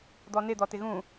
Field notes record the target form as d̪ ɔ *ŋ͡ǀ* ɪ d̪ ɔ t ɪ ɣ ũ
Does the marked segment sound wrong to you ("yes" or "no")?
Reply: yes